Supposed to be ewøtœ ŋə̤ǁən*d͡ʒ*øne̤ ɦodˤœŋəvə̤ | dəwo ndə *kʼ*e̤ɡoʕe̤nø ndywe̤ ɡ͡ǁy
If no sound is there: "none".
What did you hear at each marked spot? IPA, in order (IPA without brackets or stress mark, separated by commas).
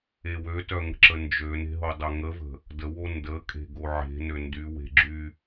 d͡ʒ, kʼ